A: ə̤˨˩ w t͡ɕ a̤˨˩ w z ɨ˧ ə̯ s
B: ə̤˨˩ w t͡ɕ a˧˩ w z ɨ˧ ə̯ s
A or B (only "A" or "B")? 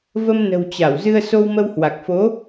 B